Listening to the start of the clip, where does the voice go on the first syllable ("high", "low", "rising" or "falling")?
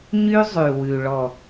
high